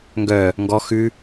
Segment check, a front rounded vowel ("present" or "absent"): present